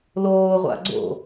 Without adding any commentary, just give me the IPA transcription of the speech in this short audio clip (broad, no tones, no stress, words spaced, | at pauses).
loːʁʷa̰ ɡ͡ǀo̰